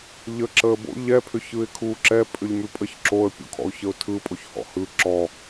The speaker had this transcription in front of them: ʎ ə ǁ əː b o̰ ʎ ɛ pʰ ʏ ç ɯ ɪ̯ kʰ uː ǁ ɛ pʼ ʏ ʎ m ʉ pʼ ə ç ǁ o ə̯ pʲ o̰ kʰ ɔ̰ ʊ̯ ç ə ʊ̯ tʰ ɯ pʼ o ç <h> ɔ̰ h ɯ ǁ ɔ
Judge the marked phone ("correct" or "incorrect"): correct